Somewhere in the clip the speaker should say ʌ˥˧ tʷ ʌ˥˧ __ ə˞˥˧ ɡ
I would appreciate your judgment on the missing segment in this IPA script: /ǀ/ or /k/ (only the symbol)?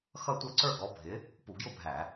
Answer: ǀ